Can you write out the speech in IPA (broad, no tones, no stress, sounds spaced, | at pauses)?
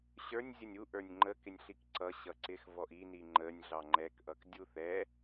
ɕ ə˞ nʲ zʲ ə nʲ u ʔ ə˞ nʲ ŋ͡ǃ ə k ɪ nʲ ɬ i k ǀ ʌ ɕ ʌ ǀ ɪ x v ɔ ʔ i n i ŋ͡ǃ ə nʲ ɮ ɑ ŋ͡ǃ ɛ k ʔ ʌ k dʲ u θ ɛ